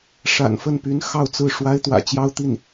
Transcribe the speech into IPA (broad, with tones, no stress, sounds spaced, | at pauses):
ʂ a̰˨˩ n f ə˥˩ n p y˧˥ n x ɑ˥˧ ʊ̯ t͡s ɹ̩˥˩ ʂ w a˥ ɪ̯ t̪ w ä̰˨˩ t͡ɕ j ɑ˥ ʊ̯ t̪ i˥˩ n